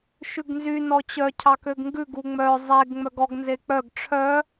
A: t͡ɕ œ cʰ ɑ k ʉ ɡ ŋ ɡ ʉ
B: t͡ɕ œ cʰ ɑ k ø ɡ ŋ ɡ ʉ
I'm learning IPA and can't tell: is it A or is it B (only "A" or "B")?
B